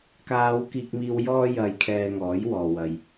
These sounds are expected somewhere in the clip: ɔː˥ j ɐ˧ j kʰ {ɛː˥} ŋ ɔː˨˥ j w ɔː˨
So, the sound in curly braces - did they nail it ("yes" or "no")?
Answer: no